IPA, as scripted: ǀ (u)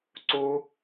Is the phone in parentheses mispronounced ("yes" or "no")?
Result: no